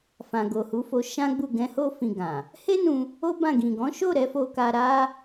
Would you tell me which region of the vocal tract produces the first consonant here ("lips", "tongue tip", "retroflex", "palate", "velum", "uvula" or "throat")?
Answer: lips